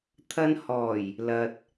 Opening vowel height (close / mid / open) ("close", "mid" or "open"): open